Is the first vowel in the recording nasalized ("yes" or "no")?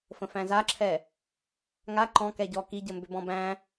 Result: yes